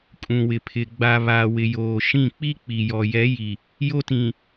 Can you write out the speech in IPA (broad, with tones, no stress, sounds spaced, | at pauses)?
kʼ ũ˨ w ɪ˨ pʰ ɪ˨ ɡ͡b a˨ β a˨ w ɪ˨ j oː˨ ʃ ĩ˦˨ k͡p i˦ k͡p i˨ j ɔ˨ j ɛ˨˦ j i˨ | j o˦ t ĩ˨